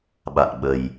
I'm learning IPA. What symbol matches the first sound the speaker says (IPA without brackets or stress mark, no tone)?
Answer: ɓ